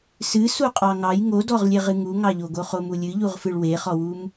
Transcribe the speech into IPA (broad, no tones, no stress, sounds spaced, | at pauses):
s ɨ s u qʼ ɑ ŋ ɑ j ŋ o d ɔ ʁ lʲ e ʁ ɨ ŋ u ŋ ɑ ʎ o ɡ o χ o m u lʲ ɨ ʎ u ʁ f ɨ ɭ w e χ ɔ w u m